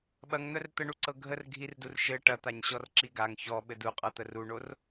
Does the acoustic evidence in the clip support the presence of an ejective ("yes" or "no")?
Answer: yes